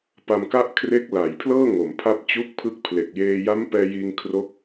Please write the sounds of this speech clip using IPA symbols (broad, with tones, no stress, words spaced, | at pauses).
pa˧mka˥˩ʔkʰre˦˥k̚ la˩˦jpʰlɤː˥˩ŋo˩˦m pʰa˦˥p̚t͡ɕu˦˥k̚pʰɯ˦˥k̚ pʰle˨˩k̚jeː˧ ja˦˥mpɛː˧ jiː˧ŋkʰro˦˥k̚